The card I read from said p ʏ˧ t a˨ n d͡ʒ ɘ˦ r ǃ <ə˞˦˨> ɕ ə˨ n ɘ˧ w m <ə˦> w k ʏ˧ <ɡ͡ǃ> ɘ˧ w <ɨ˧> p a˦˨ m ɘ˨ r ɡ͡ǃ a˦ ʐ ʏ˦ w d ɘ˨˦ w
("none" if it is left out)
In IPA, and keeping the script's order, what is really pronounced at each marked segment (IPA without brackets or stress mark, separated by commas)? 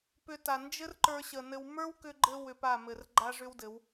ə˞˧, ə˞˦, ɡ͡ǃ, ʏ˧